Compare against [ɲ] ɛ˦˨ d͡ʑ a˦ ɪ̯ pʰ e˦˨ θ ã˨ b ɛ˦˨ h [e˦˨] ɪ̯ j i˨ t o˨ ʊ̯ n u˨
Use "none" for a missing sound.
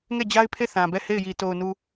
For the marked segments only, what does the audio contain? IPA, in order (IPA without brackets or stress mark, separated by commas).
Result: ŋ, e˦˨